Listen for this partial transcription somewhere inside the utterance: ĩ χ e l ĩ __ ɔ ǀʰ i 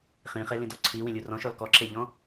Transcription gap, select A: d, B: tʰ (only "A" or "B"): A